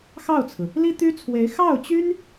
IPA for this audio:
x ɑ˥˩ ʊ̯ t͡sʰ ɹ̩˩ | l i˥ t̪ y˥ t͡sʰ w e˧˥ ɪ̯ x ɑ˥˩ ʊ̯ t͡ɕ y˥ n

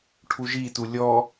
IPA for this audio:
ʈʰ u ʒ i t u lʲ ɔ

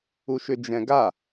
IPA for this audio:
u ʃ ʏ d͡ʒ ɛ̃ ɡ a

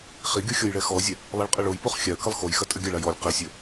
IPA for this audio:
χ i ɡʲ o xʲ ɔ j ɭ ɛ x ɔ zʲ ɛ | lˠ i ɭ qʼ ɘ ɭ o j p o χ xʲ a ə̯ k ɘ lˠ x o j x ɐ tʼ ɘ ɡʲ ɐ ɭ a j ɔ lʲ q i sʲ ɘ

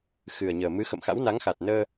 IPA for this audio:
x ɨ˨˩ ə̯ ɲ əː˨˩ m ɨ˨˦ x ə̰˧˨ m x a̰˧˥ w n a˨˦ ŋ x a˨˩ t̚ n əː˧

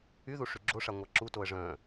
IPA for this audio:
y ð u ʂ y ɡ͡ǁ o ʂ a ŋʷ a ǁ u t o ə̯ ʐ œ̃

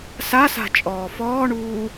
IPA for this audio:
s a s a̤ t͡ʃʼ ɔː f ɔː ɳ uː

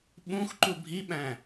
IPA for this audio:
ɓ ũ x ǃ u bʱ i ɓ æ̃

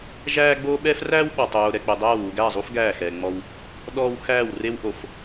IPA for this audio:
ʒ æː˦ ɡ͡b oː˦ ɓ ɛː˦ f r æː˦ w ɓ ɔ˨ tˤ oː˨ ɾ ɛ˨ k͡p ɛ˨ dˤ æː˦˨ w u˨ ɡ æ˦˨ zˤ u˦ f ɡ æː˦˨ x ɛː˨ ŋ͡m ɔ˦ w | ɗ ɔː˦ w x æː˦˨ w r e˦ w ʔ o˨ f

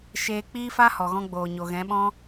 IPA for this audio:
ʃ eː˧ k͡p iː˦ f a˦ h ɔ˨ ɣ ɔ̃˧ ɡ͡b oː˨ ɲ o˨ ɣ ɛ̃˨˦ ɓ ɔ̃˦

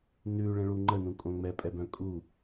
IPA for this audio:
n ʉ ɭ ə̃ ɭ u ŋ͡ǃ ə n ũ kʼ õ ŋ͡m ɛ pʼ ɛ b œ̃ kʼ u

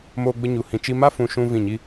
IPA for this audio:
m oː˦ ɡ͡b ə˦ ɲ u˧ h ĩ˧ t͡ʃ i˧ m a˦ f ũ˧ ʃ ũ˦ v ĩ˦˨ ɲ i˦

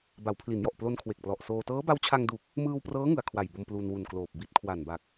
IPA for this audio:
b a˩˦ w pʰ l i˩˦ n j ɔ˨˩ ʔ p l o˧ n kʰ w e˨˩ k̚ p l ɔ˨˩ ʔ s oː˧ t ɤː˦˥ b a˦˥ w t͡ɕʰ a˧ ŋ d u˨˩ k̚ | m ɯː˧ w p r ɤː˦˥ ŋ ɯ˨˩ a̯ kʰ w a˨˩ j b o˧ m p l u˧ n w u˨˩ n k l oː˨˩ p̚ b i˦˥ t̚ kʰ w a˨˩ n b a˨˩ k̚

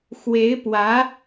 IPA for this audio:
x w e˧˥ ɪ̯ p w ä˧˥

